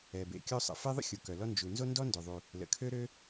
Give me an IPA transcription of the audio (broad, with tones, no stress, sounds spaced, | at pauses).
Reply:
ɛ˩ b ḛ˩ kʲ o˥ sˤ ə̰˩ f e˥ ðˤ ə̰˥ xʲ u˩ k œ˩ l ɔ˥ n d͡ʒ u˩ n z o˥ n d ɔ˥ n d ø˩ ðˤ u˩ | l ə̰˩ kʰ ø˥ ɾ ø˥